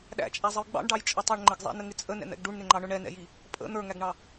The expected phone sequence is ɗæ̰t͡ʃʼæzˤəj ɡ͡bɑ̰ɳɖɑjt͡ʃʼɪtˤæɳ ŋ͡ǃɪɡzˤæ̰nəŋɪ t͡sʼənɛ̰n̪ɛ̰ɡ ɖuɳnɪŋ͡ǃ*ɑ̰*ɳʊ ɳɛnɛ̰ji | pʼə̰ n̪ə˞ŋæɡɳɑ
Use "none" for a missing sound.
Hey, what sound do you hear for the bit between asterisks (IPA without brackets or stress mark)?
ɑ